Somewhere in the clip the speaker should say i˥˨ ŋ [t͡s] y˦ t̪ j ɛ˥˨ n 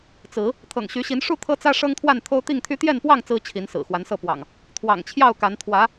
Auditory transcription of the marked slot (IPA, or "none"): t̪ʰ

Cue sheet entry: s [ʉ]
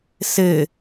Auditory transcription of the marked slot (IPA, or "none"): ɘ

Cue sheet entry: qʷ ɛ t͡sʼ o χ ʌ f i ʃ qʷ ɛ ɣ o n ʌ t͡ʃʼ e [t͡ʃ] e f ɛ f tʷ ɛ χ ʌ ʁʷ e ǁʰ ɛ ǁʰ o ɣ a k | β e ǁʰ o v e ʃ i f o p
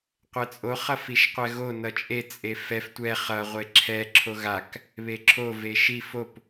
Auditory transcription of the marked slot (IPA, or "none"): t͡sʼ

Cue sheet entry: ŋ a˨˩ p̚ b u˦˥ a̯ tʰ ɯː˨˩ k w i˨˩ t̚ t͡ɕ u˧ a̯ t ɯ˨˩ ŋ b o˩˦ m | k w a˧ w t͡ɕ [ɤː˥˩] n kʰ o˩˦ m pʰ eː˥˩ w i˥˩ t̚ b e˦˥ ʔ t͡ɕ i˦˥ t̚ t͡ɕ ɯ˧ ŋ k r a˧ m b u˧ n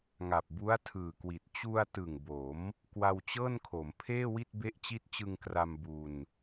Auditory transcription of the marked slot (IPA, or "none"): ɤː˥˩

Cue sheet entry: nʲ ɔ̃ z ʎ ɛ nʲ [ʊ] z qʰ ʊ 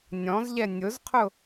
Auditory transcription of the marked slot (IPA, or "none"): ʊ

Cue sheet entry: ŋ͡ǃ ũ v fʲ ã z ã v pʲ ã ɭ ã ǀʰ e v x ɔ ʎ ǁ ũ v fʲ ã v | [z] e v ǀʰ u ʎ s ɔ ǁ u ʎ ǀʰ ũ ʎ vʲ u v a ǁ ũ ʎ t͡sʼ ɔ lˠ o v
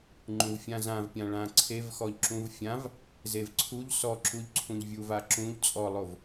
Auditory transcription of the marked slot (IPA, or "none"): z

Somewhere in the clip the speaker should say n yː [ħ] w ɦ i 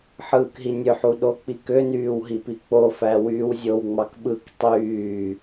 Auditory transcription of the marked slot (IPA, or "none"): none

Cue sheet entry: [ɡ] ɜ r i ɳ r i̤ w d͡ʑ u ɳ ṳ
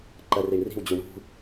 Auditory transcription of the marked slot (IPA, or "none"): ǃ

